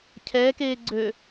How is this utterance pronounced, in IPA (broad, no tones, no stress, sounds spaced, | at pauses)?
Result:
cʰ ɛː k eː ɡ͡ǀ ø